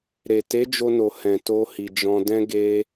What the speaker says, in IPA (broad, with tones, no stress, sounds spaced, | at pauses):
ɾ e˨ t e˨˦ d͡ʒ o˧ n o˨ h ɛ̃˨ t o˧ h i˨ d͡ʒ ɔ̃˧ d ɛ̃˦ ɡ e˧